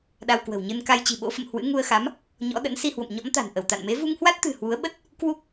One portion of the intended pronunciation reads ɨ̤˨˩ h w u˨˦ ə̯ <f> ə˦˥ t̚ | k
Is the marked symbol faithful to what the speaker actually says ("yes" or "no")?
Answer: no